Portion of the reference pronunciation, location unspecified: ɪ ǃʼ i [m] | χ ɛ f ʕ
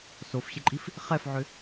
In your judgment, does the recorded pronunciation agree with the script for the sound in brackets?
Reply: no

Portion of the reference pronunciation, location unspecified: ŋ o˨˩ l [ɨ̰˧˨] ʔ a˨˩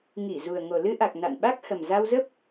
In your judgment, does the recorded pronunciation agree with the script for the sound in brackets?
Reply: no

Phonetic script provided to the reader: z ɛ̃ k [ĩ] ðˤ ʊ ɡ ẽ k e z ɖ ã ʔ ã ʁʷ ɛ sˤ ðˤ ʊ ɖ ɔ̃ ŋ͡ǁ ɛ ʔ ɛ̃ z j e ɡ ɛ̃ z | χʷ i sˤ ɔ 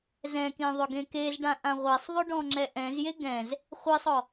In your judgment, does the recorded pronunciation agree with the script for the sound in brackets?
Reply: yes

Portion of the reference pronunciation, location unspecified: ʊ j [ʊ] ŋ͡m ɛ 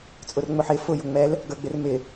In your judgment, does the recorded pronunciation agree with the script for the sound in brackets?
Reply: yes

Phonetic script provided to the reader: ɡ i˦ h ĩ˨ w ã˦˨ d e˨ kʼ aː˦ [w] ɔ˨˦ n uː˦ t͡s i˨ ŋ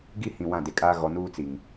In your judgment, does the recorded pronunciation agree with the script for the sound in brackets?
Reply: no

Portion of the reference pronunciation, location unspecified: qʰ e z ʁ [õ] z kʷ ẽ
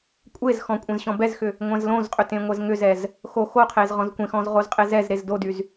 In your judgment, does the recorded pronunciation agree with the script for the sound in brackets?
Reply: no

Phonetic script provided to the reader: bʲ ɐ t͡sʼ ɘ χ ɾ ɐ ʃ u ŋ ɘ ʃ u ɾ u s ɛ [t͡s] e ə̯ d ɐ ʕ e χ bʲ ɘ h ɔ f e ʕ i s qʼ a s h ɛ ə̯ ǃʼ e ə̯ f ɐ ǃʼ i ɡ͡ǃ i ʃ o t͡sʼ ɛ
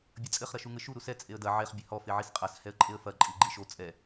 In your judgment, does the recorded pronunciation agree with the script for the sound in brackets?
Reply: no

